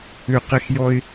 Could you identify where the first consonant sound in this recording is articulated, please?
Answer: uvular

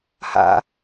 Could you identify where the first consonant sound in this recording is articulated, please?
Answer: glottal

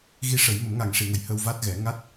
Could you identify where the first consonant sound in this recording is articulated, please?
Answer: velar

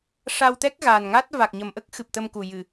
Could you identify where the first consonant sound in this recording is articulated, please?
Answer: retroflex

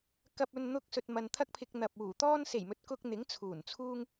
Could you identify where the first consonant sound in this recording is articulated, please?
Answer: velar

